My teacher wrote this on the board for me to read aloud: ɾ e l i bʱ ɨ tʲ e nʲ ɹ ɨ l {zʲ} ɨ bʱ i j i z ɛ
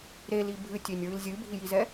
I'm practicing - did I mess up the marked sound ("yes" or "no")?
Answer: no